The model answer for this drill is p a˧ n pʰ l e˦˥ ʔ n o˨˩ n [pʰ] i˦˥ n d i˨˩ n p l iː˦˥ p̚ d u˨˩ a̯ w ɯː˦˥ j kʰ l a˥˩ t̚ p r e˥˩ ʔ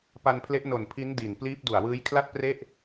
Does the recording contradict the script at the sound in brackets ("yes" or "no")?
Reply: no